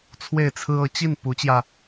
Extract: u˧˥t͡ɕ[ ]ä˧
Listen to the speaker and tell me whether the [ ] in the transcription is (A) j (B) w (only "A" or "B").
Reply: A